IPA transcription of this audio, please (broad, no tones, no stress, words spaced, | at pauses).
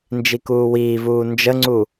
nd͡ʒikuːwiːvuː nd͡ʒəŋ͡ǀu